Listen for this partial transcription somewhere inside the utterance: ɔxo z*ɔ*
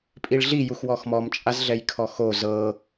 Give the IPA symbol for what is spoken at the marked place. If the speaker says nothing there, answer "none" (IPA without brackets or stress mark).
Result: ɤ